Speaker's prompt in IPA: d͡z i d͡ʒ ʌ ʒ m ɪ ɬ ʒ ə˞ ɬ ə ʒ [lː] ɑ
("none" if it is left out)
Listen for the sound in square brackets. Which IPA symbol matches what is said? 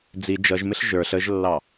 lː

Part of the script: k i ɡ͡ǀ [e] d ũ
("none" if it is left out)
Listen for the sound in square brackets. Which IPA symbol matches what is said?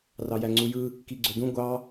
ø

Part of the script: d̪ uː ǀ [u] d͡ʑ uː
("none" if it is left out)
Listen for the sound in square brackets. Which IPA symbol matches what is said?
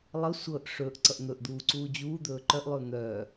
uː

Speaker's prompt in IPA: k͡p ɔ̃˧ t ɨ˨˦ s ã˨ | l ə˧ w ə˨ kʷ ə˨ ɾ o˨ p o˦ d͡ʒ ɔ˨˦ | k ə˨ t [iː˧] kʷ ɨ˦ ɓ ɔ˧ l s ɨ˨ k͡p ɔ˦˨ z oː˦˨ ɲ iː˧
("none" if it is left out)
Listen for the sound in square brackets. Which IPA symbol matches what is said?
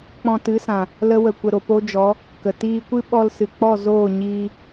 iː˧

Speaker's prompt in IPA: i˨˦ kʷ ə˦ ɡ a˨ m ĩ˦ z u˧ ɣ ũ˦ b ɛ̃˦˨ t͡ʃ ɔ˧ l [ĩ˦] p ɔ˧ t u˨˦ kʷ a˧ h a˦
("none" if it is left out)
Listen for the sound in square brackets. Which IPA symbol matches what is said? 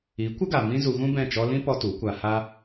ĩ˦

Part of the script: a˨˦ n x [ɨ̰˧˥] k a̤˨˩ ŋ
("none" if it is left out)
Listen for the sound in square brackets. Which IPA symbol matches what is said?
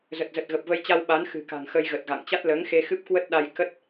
ɨ̤˨˩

